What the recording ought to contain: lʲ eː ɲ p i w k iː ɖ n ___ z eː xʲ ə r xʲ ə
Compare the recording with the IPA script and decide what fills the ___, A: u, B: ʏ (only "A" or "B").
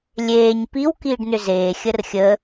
B